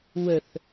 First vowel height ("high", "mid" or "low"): mid